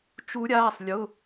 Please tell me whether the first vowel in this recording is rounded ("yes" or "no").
yes